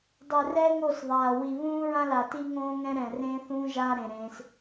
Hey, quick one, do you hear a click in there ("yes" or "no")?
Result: no